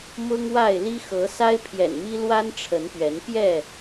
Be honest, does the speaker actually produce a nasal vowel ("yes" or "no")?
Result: no